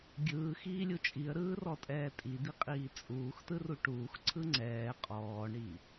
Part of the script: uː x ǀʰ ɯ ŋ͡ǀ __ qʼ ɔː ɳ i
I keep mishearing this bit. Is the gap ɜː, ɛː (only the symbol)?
ɛː